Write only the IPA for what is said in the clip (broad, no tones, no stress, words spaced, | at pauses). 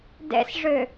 dɛ̰sʐø